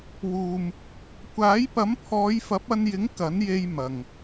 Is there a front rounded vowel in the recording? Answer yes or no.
no